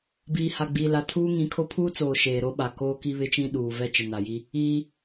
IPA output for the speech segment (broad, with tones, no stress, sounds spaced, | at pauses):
b iː˨ h a˨ ɡ͡b iː˨ l a˨ tʰ uː˦ ŋ ĩ˨˦ kʰ o˦ pʰ uː˦ t͡s oː˨ ʃ eː˨ ɾ o˦ ɓ a˨ k oː˦ k i˦ β ɪ˦ t͡ʃ ĩ˦ ɗ uː˨ v ɛ˦ t͡ʃ ɪ˨ n a˨ j i˦ | iː˦